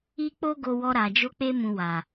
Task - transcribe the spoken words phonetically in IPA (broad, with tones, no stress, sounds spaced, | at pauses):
i˦ k͡p o˦ ɡ o˧ w ɔ˧ ɾ a˨ d͡ʒ o˧ k͡p e˧ m ũ˨ w a˨